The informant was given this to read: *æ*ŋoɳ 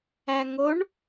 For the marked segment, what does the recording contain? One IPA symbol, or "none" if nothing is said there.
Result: æ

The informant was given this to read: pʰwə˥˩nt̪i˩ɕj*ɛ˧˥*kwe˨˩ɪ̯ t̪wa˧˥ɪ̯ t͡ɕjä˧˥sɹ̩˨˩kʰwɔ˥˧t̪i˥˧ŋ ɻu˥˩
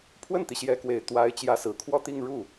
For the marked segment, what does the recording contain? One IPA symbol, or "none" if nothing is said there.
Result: ɛ˧˥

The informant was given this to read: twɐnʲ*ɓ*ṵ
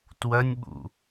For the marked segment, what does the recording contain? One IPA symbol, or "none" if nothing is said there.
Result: ɓ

